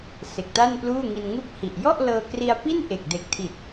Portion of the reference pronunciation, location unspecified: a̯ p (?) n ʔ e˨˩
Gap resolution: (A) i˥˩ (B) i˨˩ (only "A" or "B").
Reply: A